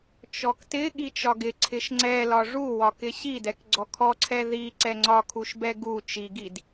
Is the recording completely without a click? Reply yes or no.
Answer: no